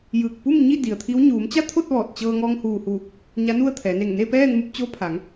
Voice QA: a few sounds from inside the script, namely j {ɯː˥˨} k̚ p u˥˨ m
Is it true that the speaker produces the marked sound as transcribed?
no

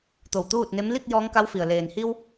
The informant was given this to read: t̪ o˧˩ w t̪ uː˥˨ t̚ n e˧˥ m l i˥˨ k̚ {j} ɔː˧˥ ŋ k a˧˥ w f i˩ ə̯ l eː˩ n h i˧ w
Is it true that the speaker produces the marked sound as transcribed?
yes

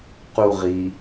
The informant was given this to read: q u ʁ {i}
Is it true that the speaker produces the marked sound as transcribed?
yes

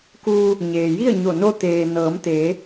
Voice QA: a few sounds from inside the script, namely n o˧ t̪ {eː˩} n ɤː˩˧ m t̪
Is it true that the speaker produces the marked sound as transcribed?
yes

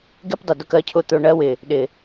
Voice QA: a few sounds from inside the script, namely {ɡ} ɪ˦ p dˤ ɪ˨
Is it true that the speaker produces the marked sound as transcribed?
yes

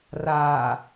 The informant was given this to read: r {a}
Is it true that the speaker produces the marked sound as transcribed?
yes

